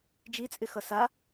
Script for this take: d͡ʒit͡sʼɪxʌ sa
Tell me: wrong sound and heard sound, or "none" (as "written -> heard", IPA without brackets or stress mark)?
none